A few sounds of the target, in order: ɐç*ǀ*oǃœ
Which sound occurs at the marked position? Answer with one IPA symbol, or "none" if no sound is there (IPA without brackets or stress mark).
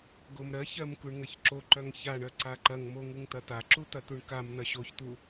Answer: ǁ